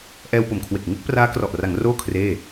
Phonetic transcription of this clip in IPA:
ʔ ɛː˧ w p o˨˩ m kʰ w e˨˩ k̚ ŋ ɯ˦˥ k̚ p r aː˦˥ k r ɔ˨˩ ʔ r a˩˦ ŋ r oː˥˩ kʰ r eː˥˩

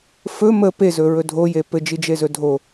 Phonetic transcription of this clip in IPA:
f ɵ m ə p e z ɵ ɹ ɵ dʱ o j e p ɘ d͡ʒ i d͡ʒ e z ɵ dʱ o

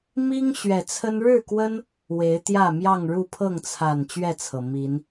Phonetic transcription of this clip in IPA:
m i˦ ŋ ɕ ɥ ɛ˨˩ t͡sʰ ə˦ n ɻ ɻ̩˥˨ k w ə˦ n | w e˨˦ ɪ̯ t̪ j ä˥˨ m j ɑ˥˨ ŋ ɻ u˥˨ pʰ ɤ˥˨ ŋ t͡sʰ a˨˩ n t͡ɕ ɥ ɛ˥˨ t͡sʰ ɤ˩ m i˨˦ n

